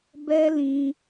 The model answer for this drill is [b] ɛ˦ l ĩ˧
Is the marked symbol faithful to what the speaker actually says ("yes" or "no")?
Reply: yes